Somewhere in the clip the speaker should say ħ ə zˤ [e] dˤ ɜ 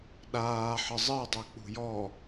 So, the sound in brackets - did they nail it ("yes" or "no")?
no